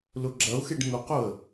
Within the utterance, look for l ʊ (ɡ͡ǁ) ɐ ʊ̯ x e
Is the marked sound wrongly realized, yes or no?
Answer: no